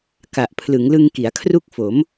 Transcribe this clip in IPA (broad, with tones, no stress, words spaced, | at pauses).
ka˨˩ʔpʰlɯ˩˦ŋlɯ˧ŋ ki˩˦a̯kʰru˥˩k̚ fo˩˦m